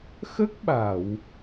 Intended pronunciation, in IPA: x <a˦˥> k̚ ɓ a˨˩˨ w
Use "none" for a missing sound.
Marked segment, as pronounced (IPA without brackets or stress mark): ə˦˥